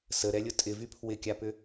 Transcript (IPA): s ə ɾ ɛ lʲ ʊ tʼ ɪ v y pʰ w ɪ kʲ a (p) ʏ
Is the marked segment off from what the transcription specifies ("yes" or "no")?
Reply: no